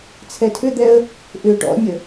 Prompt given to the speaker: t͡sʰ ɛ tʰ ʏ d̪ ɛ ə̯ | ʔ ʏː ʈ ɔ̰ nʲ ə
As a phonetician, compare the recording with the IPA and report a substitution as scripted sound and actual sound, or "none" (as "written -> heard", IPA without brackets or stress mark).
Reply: none